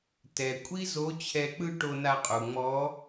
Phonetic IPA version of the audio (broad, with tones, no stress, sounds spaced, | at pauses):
t ɛ˩ kʷʼ i˥ z o˧˥ t͡ɕʰ ɛ˧ k͡p ɯ˥ ʈ o˧ n a˧ qʼ u˩ ŋ͡m ɔ˧˥